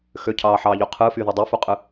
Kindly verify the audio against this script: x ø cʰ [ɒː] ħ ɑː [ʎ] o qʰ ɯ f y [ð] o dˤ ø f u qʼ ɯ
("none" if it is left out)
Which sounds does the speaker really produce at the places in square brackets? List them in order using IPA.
ɑː, ʎ, ð

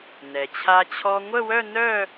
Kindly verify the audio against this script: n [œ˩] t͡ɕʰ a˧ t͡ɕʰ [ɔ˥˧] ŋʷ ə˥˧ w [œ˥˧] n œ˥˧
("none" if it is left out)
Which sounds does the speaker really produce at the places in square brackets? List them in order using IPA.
ɛ˩, ɔ˧, œ˥˧

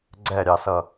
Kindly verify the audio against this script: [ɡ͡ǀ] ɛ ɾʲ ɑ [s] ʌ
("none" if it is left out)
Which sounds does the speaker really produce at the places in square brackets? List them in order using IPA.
ɡ͡ǀ, s

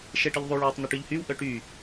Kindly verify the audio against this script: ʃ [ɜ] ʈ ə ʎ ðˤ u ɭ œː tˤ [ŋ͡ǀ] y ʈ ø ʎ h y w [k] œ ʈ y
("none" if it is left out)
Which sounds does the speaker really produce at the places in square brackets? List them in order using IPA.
ɛ, n̪, ʔ

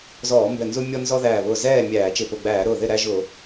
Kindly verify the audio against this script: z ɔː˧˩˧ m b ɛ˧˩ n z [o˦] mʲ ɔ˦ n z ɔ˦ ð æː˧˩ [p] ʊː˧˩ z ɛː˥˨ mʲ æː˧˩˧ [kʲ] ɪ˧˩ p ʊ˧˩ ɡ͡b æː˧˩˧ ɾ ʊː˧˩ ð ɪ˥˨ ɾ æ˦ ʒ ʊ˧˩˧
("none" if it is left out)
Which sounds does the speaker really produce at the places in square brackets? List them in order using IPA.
u˦, β, t͡ʃ

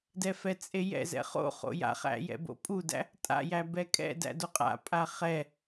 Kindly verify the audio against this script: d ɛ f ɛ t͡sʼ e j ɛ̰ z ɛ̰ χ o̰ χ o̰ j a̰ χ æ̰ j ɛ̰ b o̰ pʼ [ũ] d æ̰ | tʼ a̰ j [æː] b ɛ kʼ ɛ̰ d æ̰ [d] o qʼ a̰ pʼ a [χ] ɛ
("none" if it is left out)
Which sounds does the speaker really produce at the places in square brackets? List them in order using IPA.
u, æ, d, χ

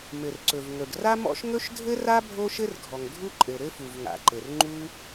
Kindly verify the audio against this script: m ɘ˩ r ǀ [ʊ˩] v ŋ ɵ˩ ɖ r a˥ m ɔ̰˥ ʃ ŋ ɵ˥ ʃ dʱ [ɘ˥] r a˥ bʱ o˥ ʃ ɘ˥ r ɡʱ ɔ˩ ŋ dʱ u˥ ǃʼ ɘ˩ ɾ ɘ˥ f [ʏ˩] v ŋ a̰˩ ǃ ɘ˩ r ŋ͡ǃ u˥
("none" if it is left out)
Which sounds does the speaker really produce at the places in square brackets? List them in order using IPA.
ɵ˩, ɘ˥, u˩

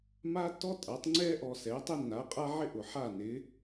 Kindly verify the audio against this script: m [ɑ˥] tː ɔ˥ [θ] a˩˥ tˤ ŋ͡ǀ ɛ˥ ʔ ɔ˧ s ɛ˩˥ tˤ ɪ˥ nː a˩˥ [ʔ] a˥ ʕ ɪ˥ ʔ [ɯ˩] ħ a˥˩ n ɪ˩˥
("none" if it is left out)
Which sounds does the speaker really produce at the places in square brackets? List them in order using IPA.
a˥, tʼ, qʼ, ʊ˩

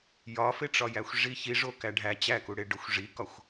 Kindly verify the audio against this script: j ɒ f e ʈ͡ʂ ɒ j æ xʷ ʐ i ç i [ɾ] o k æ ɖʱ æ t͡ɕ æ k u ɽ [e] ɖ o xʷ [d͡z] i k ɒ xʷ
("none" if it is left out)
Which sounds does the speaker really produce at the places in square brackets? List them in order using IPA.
ʐ, e, ʐ

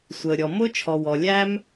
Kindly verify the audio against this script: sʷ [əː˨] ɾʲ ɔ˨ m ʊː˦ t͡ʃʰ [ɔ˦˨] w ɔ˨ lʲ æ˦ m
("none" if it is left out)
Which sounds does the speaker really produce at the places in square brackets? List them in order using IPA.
əː˨, ɔ˨

